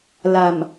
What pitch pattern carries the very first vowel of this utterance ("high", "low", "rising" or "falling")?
low